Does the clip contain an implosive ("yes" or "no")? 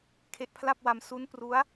no